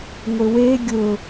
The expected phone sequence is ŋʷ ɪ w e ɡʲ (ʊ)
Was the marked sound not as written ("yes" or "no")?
no